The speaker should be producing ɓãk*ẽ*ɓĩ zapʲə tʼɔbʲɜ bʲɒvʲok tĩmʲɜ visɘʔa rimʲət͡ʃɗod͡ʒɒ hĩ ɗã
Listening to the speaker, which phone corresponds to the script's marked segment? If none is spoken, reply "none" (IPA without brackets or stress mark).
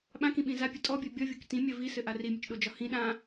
ĩ